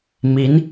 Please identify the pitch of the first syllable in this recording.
rising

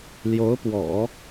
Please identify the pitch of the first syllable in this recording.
rising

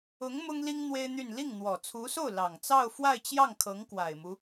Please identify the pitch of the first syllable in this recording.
rising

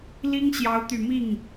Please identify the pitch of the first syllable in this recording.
high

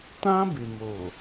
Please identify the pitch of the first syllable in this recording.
high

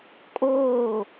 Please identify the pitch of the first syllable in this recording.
falling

